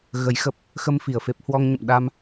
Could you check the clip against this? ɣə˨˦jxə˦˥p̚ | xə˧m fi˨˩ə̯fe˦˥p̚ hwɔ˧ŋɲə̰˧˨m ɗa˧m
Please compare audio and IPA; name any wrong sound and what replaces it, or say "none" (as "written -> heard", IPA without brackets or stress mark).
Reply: none